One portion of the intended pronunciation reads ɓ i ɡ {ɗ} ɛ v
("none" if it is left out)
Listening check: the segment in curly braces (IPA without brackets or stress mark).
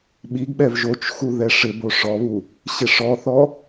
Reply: ɓ